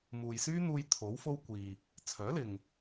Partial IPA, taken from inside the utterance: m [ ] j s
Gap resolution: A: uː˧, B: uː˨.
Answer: B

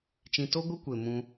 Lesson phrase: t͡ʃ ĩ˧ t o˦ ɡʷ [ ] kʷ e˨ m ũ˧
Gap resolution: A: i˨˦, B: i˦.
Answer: B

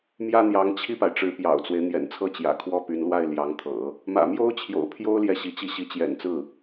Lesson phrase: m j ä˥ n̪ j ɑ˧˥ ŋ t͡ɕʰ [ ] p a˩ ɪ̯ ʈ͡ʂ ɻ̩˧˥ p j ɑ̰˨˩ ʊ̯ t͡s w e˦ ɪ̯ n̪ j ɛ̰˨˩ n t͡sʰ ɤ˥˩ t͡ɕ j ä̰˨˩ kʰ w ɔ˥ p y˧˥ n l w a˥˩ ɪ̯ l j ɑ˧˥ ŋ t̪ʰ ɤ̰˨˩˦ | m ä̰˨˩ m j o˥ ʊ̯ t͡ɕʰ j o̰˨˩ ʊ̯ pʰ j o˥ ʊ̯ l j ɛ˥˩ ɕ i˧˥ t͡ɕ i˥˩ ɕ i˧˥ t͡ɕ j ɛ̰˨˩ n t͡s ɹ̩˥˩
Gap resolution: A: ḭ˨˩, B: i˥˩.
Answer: B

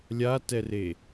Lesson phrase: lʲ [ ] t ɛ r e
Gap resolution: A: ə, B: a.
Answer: B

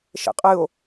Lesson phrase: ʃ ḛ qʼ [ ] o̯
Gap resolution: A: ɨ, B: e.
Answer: A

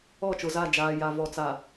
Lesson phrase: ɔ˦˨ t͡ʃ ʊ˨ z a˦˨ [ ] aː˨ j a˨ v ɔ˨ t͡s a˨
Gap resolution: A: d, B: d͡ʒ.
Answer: B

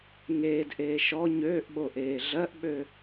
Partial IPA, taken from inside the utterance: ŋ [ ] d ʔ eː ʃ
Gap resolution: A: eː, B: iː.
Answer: A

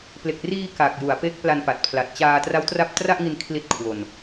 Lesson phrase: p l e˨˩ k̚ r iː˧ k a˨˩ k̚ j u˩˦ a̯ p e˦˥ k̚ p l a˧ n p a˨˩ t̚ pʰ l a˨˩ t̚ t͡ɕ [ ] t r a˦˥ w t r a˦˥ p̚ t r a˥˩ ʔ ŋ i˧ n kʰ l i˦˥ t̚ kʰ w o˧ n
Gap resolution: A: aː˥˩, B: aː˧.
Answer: B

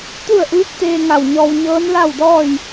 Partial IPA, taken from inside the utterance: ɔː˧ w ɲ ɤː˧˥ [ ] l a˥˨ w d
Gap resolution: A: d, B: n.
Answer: B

